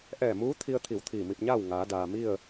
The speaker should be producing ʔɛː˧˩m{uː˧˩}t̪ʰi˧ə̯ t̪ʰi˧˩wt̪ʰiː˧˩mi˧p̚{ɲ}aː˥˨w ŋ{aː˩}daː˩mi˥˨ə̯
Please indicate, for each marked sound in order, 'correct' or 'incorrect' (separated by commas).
incorrect, correct, incorrect